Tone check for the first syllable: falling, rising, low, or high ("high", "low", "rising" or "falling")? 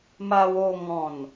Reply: high